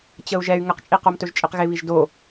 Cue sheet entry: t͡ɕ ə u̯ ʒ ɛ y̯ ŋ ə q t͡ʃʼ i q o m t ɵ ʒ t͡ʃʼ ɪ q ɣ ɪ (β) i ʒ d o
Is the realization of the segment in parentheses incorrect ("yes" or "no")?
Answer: no